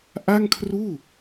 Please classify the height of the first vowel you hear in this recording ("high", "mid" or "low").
low